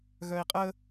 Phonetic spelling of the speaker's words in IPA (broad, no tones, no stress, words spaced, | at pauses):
ɣœi̯qʼə